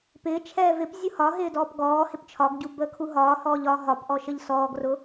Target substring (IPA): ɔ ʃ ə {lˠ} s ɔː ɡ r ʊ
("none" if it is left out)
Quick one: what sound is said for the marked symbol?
ʎ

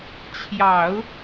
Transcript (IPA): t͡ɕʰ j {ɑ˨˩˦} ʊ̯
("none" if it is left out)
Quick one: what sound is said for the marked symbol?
ɑ˨˩˦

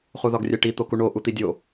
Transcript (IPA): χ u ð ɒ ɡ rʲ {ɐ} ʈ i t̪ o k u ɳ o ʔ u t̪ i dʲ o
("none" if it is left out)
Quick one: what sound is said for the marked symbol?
æ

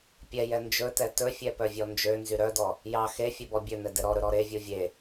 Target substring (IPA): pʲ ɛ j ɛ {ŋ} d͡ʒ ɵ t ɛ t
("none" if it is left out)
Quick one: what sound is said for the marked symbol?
n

